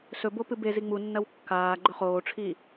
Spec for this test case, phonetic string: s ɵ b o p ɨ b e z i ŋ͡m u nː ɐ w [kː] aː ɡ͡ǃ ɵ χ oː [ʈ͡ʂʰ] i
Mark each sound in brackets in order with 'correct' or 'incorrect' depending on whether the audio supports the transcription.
correct, correct

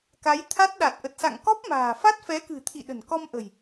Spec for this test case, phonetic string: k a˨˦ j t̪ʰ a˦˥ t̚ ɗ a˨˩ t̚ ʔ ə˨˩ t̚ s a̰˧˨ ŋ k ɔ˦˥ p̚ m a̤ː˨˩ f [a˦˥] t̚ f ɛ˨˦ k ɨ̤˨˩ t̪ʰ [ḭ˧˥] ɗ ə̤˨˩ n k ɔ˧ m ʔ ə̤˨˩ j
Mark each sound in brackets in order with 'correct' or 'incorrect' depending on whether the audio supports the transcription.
correct, incorrect: ḭ˧˨

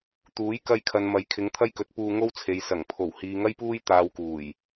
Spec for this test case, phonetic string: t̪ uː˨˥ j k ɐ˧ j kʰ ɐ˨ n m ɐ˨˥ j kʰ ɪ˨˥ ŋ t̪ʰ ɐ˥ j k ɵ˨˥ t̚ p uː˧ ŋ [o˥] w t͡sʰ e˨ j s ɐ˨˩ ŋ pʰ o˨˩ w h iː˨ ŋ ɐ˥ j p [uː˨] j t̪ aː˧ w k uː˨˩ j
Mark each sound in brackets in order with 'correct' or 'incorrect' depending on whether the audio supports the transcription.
correct, incorrect: uː˥

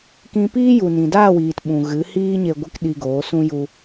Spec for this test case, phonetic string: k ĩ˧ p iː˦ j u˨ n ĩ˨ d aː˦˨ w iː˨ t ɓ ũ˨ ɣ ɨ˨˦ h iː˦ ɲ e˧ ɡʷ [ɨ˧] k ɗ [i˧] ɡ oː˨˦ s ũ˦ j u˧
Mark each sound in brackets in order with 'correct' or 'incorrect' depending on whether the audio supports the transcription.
correct, correct

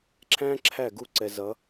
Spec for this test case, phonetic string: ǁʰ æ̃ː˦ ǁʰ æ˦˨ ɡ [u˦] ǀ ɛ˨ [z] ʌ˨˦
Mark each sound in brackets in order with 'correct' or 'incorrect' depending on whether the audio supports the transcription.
incorrect: u˦˨, correct

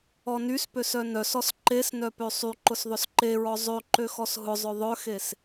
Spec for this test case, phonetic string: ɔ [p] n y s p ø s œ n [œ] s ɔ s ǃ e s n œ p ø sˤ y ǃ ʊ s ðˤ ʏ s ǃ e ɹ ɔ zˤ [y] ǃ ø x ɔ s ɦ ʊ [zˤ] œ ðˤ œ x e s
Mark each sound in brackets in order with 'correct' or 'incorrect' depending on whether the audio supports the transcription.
incorrect: none, correct, incorrect: ø, correct

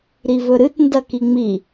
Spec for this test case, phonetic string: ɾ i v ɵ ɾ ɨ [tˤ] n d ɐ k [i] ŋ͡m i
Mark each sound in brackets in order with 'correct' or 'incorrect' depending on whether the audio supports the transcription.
incorrect: t, correct

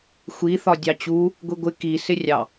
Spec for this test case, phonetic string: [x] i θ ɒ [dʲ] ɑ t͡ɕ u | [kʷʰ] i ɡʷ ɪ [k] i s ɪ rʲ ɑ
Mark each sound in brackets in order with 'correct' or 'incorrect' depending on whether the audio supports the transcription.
incorrect: xʷ, correct, incorrect: ɡʷ, correct

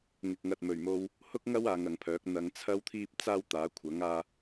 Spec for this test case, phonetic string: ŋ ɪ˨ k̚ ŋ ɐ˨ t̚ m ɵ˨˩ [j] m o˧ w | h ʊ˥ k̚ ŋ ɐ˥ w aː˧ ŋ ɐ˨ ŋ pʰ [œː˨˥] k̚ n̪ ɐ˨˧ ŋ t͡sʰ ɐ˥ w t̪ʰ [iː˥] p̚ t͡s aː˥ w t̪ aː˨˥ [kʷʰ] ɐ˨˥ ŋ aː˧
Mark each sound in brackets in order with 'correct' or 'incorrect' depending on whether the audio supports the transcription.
incorrect: ɥ, correct, correct, correct

